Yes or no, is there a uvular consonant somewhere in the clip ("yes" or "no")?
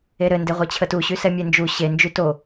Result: yes